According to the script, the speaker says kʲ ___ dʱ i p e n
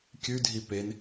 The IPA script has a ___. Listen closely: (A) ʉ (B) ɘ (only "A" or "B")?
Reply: A